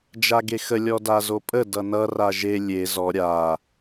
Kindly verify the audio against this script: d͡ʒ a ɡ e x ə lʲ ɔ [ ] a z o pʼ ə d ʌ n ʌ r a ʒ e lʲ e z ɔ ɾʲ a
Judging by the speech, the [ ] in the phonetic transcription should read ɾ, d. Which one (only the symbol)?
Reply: d